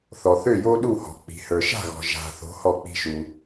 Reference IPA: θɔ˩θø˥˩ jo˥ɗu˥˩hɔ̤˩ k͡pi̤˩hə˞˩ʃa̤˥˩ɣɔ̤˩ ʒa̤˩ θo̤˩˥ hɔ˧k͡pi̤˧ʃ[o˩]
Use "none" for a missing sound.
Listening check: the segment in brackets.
u˩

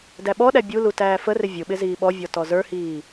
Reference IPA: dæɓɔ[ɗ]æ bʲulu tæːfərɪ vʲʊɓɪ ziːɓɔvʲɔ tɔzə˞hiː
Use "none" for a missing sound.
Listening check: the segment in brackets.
ɗ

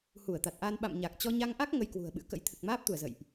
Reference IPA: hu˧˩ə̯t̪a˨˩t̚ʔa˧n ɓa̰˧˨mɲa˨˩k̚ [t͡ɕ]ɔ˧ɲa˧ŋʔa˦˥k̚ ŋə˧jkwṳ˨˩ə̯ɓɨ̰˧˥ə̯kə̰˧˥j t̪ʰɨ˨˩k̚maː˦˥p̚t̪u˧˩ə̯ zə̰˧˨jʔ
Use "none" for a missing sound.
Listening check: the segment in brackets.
t͡ɕ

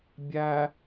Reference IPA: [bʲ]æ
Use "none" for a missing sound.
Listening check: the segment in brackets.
bʲ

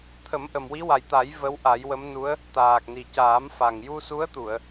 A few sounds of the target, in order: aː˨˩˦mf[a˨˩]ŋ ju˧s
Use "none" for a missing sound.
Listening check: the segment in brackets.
a˨˩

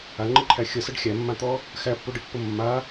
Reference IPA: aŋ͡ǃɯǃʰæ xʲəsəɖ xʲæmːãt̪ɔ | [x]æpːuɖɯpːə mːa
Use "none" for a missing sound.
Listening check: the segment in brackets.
x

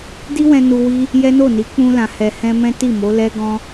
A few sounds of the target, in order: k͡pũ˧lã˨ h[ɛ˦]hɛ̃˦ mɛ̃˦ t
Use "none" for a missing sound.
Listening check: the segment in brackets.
ɛ˧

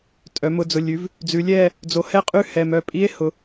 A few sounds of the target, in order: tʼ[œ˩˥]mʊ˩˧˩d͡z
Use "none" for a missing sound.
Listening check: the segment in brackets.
œ˩˧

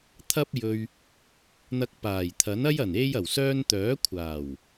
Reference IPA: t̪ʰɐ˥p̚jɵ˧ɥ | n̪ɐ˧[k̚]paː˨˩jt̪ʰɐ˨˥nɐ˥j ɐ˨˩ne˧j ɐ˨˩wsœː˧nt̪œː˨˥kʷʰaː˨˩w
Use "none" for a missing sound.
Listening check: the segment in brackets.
k̚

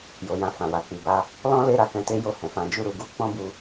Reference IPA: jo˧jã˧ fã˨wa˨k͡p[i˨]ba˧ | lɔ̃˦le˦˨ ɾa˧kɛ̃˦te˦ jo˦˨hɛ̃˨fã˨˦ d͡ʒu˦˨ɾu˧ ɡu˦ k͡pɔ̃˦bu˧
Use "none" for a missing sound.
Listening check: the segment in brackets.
i˨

